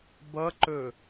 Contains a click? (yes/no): yes